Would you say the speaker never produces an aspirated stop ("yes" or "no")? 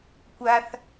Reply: yes